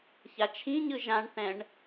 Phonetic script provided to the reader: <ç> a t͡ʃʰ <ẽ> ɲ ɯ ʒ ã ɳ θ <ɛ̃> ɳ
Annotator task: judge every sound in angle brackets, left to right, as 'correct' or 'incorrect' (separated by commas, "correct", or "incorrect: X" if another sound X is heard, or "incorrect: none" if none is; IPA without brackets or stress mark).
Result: correct, incorrect: ĩ, correct